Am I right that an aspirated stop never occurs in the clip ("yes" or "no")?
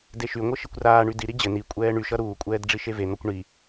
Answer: yes